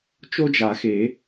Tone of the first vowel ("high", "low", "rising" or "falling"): high